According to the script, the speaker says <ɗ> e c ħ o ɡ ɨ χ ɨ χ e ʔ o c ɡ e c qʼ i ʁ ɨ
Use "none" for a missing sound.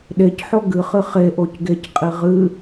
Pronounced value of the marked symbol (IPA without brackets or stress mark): ɗ